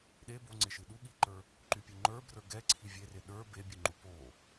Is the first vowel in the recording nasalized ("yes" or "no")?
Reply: no